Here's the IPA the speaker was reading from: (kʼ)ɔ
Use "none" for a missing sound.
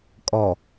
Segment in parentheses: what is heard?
kʼ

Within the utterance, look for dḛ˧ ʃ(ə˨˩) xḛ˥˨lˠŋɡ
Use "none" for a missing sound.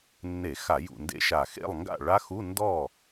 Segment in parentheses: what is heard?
a˨˩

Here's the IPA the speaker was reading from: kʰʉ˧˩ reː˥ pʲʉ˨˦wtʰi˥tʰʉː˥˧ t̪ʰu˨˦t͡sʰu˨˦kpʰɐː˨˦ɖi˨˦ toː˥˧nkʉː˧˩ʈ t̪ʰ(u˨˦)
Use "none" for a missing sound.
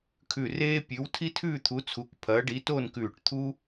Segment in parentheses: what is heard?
u˥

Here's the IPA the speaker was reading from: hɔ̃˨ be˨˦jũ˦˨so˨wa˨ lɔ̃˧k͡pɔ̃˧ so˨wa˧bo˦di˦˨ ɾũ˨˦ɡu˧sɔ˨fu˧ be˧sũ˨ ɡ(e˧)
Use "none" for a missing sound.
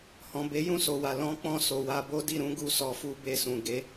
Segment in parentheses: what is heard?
e˨˦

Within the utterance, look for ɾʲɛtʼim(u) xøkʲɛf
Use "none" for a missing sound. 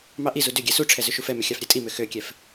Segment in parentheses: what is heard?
ø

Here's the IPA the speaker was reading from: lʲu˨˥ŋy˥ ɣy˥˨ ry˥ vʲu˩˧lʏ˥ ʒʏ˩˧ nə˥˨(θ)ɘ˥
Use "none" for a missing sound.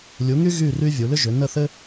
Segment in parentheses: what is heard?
θ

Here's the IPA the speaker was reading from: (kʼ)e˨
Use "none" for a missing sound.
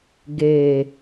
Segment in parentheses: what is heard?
ɡ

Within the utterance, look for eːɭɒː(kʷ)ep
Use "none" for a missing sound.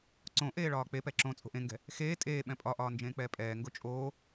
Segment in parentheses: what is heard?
k͡p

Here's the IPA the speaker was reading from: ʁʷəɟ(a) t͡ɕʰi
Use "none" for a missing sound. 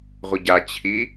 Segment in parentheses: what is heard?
a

